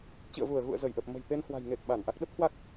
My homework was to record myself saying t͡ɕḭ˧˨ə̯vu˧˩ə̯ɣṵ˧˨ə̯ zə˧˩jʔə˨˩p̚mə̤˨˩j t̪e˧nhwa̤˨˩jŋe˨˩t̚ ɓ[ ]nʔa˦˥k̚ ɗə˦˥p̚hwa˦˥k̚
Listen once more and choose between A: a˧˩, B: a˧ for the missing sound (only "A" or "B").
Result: A